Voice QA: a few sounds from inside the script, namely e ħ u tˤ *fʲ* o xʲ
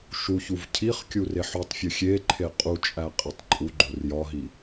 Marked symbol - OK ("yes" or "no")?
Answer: yes